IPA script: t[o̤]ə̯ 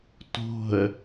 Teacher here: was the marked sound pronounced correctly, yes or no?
yes